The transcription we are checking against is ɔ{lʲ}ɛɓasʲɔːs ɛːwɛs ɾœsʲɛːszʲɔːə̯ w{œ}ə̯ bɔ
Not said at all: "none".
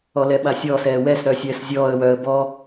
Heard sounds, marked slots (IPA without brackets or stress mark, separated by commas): l, œ